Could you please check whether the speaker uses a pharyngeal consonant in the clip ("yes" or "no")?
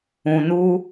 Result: no